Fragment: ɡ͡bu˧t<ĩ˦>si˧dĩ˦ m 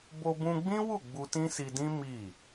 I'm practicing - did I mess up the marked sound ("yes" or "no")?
no